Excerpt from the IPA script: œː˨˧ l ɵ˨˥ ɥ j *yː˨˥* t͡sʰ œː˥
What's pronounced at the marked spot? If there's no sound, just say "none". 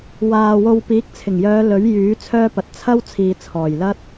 yː˨˥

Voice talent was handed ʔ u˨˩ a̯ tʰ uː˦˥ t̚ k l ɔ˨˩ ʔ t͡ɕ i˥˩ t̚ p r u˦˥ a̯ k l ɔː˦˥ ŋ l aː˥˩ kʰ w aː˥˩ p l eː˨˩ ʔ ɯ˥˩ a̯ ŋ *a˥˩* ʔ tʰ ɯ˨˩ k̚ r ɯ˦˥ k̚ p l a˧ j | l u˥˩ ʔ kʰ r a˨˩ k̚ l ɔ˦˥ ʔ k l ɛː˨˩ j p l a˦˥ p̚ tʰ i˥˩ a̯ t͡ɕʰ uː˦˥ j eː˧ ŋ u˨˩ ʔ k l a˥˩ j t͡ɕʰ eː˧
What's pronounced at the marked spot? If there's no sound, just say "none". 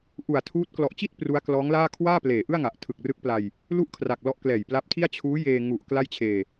a˨˩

